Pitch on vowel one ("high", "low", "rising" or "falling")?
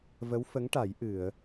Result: rising